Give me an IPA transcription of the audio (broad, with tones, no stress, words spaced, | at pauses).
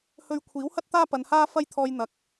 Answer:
hɵ˧ɥkʷʰiː˨˥whɐ˥t̚ t̪aː˥ pɐ˨˧nhaː˥ fɐ˥jt̪ʰɔː˧j n̪ɐ˨k̚